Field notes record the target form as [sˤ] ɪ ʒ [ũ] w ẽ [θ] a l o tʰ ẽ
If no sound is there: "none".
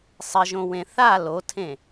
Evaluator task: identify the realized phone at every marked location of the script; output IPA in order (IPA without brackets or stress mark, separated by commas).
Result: sˤ, õ, θ